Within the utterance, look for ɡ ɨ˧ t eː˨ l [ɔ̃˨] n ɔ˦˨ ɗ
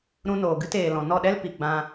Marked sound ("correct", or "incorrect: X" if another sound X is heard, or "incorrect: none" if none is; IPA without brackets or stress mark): correct